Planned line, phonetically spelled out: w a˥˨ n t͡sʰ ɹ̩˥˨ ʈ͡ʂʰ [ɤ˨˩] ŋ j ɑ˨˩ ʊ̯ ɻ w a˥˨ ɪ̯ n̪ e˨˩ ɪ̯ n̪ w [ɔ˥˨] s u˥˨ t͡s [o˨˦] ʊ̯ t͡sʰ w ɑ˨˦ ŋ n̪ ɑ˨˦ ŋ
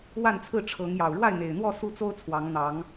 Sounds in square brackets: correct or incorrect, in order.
incorrect, correct, incorrect

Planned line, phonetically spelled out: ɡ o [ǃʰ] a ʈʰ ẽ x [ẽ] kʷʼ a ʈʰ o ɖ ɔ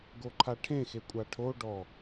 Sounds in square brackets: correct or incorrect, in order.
correct, incorrect

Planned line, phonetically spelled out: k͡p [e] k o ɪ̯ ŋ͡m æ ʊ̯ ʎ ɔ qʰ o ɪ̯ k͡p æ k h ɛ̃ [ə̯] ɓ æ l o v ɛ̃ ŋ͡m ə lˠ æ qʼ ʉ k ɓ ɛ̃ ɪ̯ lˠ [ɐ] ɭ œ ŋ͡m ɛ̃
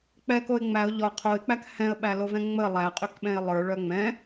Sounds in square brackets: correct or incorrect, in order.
incorrect, correct, incorrect

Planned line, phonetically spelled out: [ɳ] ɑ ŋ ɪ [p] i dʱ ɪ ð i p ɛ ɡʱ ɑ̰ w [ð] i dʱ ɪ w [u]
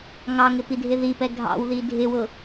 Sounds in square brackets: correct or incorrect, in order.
incorrect, correct, correct, incorrect

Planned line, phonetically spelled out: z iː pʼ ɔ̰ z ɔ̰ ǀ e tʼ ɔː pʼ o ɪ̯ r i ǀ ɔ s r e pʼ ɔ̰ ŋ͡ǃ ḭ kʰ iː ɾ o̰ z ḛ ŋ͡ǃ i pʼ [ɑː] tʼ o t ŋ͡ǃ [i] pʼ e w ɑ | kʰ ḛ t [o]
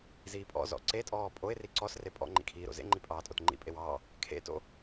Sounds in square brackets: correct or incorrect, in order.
correct, incorrect, incorrect

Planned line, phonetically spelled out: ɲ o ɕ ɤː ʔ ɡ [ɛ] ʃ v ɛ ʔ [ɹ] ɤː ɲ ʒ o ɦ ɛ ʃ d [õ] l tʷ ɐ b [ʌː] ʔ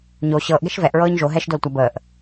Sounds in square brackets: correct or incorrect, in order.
correct, correct, incorrect, incorrect

